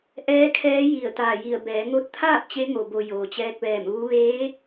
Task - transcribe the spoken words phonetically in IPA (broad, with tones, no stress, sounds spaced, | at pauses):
ʔ ɛː˧˥ kʰ ɛː˧˥ j i˧˩ ə̯ t̪ aː˧˩ j i˧˩ ə̯ b ɛː˩˧ ŋ o˧ t̚ t̪ʰ aː˥˨ p̚ t͡ɕ e˧˥ ŋ o˩ b o˩ j oː˩ t͡ɕ ɛː˧ k̚ ʋ ɛː˧˩ m ʋ u˧˥ ʋ eː˧˥